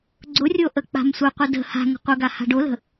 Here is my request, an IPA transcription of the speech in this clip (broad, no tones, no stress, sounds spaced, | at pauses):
ɡ͡ǀ ʊ rʲ o ʔ ə k͡p a̤ m sʷ ə qʷ ə d ə̤ h a̤ ŋ ə̤ qʷ ə ɡ a h a̤ ɖ o l ə̤